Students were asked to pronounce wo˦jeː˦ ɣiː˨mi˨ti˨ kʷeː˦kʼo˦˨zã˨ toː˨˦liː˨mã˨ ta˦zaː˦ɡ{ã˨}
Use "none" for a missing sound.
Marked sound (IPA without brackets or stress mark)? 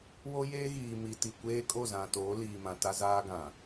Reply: ã˨